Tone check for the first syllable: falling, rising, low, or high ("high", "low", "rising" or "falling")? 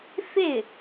falling